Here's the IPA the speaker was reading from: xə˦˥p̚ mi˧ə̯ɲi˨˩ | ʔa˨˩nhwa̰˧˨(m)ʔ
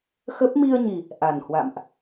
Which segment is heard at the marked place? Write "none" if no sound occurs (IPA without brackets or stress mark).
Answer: m